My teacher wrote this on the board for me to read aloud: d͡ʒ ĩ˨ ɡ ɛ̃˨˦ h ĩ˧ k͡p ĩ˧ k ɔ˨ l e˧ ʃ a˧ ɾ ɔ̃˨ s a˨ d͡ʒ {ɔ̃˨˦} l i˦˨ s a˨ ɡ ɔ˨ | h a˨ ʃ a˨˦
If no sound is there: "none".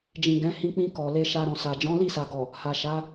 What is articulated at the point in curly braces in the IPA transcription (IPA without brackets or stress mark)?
ɔ̃˨˦